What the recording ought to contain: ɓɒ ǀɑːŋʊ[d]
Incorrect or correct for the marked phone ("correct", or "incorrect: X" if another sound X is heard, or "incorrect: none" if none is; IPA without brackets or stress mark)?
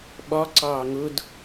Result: correct